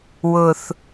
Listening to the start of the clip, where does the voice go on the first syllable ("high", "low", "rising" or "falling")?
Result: low